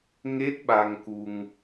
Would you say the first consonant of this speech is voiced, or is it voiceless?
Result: voiced